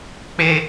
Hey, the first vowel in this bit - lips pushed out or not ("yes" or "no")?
no